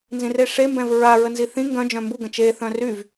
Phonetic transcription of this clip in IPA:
n z ĩ r e ʂ e m b ɛ̃ v ɹ a ɹ ə n z i θ ĩ ŋ ɡ œ̃ d͡ʒ œ̃ m b u ɡ ə̃ t͡ʃ e θ œ̃ r y v

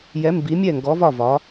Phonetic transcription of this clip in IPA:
j ɛ˨˦ m b i˨˦ mʲ ɛ˦˨ ŋ ɡ ɔ˨˦ v ɒ˦˨ v ɒ˨˦

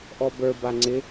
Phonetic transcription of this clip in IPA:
ʔ ɔ b ə˞ b a ŋ͡ǀ ɪ

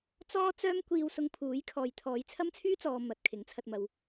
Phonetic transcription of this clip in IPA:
t͡s ɔː˥ t͡s œː˥ m kʷ iː˧ w s ʊ˧ ŋ pʰ uː˨˥ j kʰ ɔː˨ j t̪ʰ ɔː˨˧ j t͡sʰ ɐ˥ m t͡sʰ yː˥ t͡s ɔː˨ m ɐ˨ t̚ kʰ ɪ˨˥ ŋ t͡sʰ ɐ˧ t̚ m ɐ˨˧ w

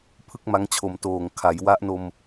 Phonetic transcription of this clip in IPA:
pʰ ɯ˥˩ k̚ m a˦˥ ŋ t͡ɕʰ o˨˩ m t oː˨˩ ŋ kʰ a˩˦ j w a˦˥ ʔ n o˧ m

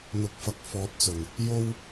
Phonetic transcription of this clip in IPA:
n̪ ʊ˨ k̚ f ɐ˨ k̚ f ɔː˨˥ t̚ t͡s ɵ˨˩ n | j o˥ w

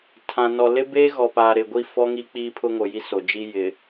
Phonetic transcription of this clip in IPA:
tʰ ã˨ n ɔ˨ l ɪ˦ b eː˦ ɣ ɔ˨ p aː˨ ɾ ɪ˨ ɡʷ i˦˨ f ɔ˦ ŋ i˦ k͡p iː˦ pʰ ʊ˦ ŋ o˨ j i˦ s o˨ d͡ʒ i˦ j ɪ˨

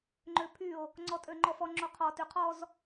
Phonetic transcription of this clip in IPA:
ŋ͡ǃ ø pʰ y o̯ | ŋ͡ǀ ɔ tʼ ø ŋ͡ǃ ɔ f ɔ ŋ͡ǁ o qʰ ɔ t y qʰ ɔ z

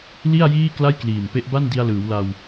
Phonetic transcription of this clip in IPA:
l i˥˩ a̯ j iː˥˩ k l a˥˩ j k l iː˨˩ m p e˦˥ ʔ b a˥˩ n d i˧ a̯ l ɯː˩˦ w l a˧ w

